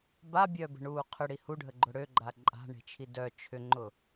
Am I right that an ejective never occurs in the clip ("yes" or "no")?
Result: no